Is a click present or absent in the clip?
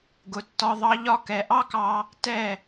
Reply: absent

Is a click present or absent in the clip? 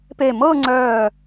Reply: present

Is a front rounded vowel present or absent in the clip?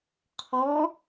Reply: absent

